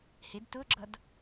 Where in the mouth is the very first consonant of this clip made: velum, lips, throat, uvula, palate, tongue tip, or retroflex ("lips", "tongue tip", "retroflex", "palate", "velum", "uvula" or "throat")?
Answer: throat